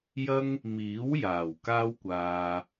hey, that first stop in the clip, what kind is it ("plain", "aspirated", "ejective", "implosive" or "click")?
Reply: plain